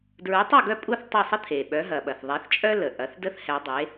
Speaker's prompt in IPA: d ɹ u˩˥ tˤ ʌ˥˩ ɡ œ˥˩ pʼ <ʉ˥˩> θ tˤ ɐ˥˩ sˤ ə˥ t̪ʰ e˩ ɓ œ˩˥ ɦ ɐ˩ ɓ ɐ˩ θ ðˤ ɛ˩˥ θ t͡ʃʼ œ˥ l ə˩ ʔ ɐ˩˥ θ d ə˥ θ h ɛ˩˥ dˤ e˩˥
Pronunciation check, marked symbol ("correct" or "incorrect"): incorrect